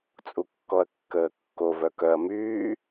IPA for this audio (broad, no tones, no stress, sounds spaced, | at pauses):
t͡sʼ u kː ɔ ɐ̯ kː əː kː o v œ k œ ɐ̯ m yː